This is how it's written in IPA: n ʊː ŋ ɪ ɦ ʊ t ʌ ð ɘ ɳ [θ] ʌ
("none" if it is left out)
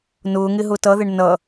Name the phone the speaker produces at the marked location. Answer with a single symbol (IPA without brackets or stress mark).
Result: n